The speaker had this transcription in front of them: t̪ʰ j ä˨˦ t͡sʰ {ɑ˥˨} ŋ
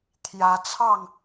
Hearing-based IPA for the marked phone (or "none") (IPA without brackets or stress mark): ɑ˥˨